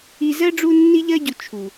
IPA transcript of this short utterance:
i˧ z ɜ˦ ɖ͡ʐ u˧ nː i˧ ʎ ɜ˧ ɟ u˨ t͡ʃʰ u˨

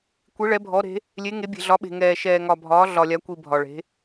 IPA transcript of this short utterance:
kʷ i˨˦ ɭ ɛ˨˦ bʱ ɔ˨˦ ɾ e̤˨˦ | lʲ e˨˦ ŋ e˨˦ bʲ e̤˨ ɮ ɒ˨˦ ɓ e̤˨ ŋ ɛː˨ ʃ ɛː˨ ŋ ɒ˨ bʱ ɒː˨˦ ɮ ɒ˨ lʲ a˨˦ kʷ i˨ bʱ ɒ˨ ɭ e̤˨˦

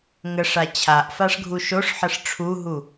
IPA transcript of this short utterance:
ŋ ə ʂ a t͡ɕʰ a ʔ f a ʂ ɡʱ u ʃ o ʂ ħ ə ʂ ʈ͡ʂʰ u ɦ u

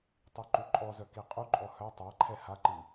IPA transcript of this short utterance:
tˤ i ǃ u ǃʼ ɔ z œ k i qʼ u ǃʼ ɔ h œ tˤ a ǃʰ ɛ h a ǃ i

